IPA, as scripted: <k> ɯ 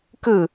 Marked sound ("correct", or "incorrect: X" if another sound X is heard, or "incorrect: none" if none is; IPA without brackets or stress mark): correct